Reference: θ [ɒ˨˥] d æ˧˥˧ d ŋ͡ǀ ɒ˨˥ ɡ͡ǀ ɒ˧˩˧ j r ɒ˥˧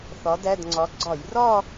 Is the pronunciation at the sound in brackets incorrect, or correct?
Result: correct